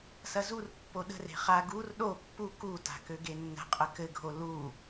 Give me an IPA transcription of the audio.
s ɐ z u r pː o ɗ ə̤ r e̤ χ a ɡ u r ɗ o pː u k u t a̤ k ø ɡ e nː ə̤ qʼ ə k ɘ ɡʱ o l u

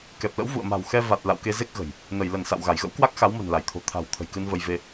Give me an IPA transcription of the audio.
k ɛ˨˩ p̚ l ə̰˧˥ w v ṵ˧˨ ə̯ m a̤˨˩ w x ɛ˧ v a˨˩ t̚ l a̰˧˨ w k e˧ z e˦˥ k̚ ɣ ə̤˨˩ j | n ə˧˩ j l ə˧˩ n s a̰˧˨ w ɣ a˧˩ j ɣ ə̰˧˥ w k w a˦˥ k̚ x a˨˦ w m ə̤˨˩ n l a˧˩ j t̪ʰ o̤˨˩ t̪ʰ a̤˨˩ w t̪ʰ ə̤˨˩ j k ɨ˧ n v ə˧ j v e˧

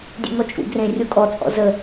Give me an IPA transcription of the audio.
dʲ ḛ ŋ ɔ t͡ʃʼ ṵ ɡ r ẽ rʲ o kʼ ɔ t͡sʼ ɔ̰ z ə

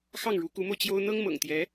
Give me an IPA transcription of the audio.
x ɑ˥˩ ŋ ɻ u˧˥ k u˧˥ m o˧ ʊ̯ t͡ɕ j o˥ ʊ̯ n̪ ɤ˥ ŋ m ɤ̰˨˩ ŋ t̪ j ɛ˧˥

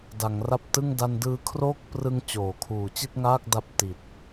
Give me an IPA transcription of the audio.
d a˩˦ ŋ r a˦˥ p̚ t ɯ˥˩ ŋ d a˧ n d ɯː˦˥ kʰ r oː˥˩ k̚ p r ɯ˧ ŋ t͡ɕ oː˩˦ kʰ uː˨˩ t͡ɕ i˥˩ t̚ ŋ aː˥˩ k̚ d a˥˩ p̚ t i˨˩ t̚

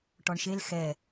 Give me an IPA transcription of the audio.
ʈ ɔ ɳ ʃ e l x ɛ

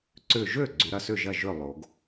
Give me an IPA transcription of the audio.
ǀ ʏ˧˩ ʒ ø˥˩ ɡ͡ǀ y˩˧ ɾ ɐ˧˩ s ʏ˥˩ ʒ ɐ˥˩ ʒ ø˥˩ lˠ o˩˧ ɡ

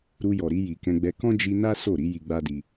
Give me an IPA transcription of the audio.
ɾ u˧ j ɔ˨ ɾ i˧ j i˨ k ɛ̃˧ ɡ͡b ɛ˧ k ɔ̃˦ d͡ʒ i˧ n a˦ s o˦˨ ɾ i˨˦ j i˧ ɡ͡b a˦ d i˧

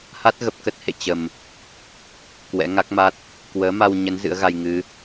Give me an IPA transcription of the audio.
h a˦˥ t̚ ɣ ə˨˩ p̚ k ə˦˥ t̚ h ḛ˧˨ t͡ɕ ə˨˩ m | k w ɛ̰˧˥ ŋ a˦˥ k̚ m a˦˥ t̚ | k w əː˨˦ m a˧ w ɲ ə˨˦ n z ɨ̰˧˥ ə̯ ɣ a˧ j ŋ ɨ˨˦

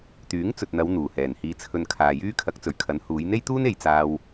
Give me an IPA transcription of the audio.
t̪ yː˨˥ ŋ t͡s ɵ˨ t̚ n̪ ɐ˨˧ w n̪ uː˨˩ h ɛː˨˩ n h iː˧ t͡sʰ ɵ˧ n kʰ aː˨ j yː˥ kʰ ɐ˨˥ k̚ t͡s ɵ˨˩ ɥ kʰ ɐ˨˥ n h uː˨˧ j n̪ e˥ j t̪ uː˥ n e˨ j t͡s aː˧ w

